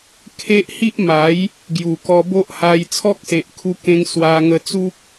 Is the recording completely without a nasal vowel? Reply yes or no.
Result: no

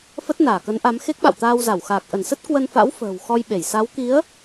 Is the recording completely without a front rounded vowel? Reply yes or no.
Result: yes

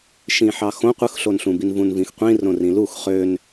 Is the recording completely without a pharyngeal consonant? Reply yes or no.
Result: no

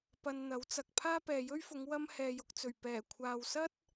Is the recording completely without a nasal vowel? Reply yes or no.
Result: yes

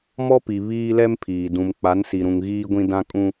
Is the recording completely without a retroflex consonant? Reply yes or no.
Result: yes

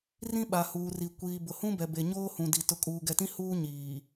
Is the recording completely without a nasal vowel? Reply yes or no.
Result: no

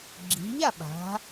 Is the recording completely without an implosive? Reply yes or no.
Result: no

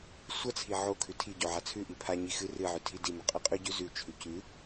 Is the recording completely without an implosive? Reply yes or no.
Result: yes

